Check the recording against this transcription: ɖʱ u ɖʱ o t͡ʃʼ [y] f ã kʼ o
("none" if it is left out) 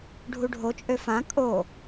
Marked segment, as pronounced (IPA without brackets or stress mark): ø